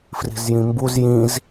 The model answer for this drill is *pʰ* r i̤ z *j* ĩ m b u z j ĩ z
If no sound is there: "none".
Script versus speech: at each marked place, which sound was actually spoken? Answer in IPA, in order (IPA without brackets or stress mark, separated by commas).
f, j